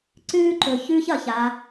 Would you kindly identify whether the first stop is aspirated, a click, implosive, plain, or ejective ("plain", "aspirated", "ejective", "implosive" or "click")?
click